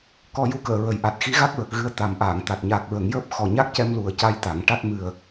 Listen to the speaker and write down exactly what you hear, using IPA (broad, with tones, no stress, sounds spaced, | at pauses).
k ɔ˧ j u˧˥ k əː˨˩˨ ɹ ə˨˩ j ʔ a˨˩ t̚ x i˧˥ ɣ a˦˥ k̚ ɹ ə˨˩ k̚ ɣ ɨ˧ ə̯ t̪ a˨˩ m ʔ aː˨˩˨ ŋ t̪ a˨˩ t̚ ɲ aː˨˩ k̚ ɹ ə˨˩˨ ŋ j əː˦˥ p̚ x ɔ˨˩ ɲ a˦˥ k̚ c ɛ˧ m l u˨˩ ə̯ c a˧ j t̪ a˨˩˨ ŋ ʈ a˦˥ t̚ m ɨ˨˩ ə̯